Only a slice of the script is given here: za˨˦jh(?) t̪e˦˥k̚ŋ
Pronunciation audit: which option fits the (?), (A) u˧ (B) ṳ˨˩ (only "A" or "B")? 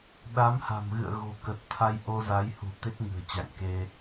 B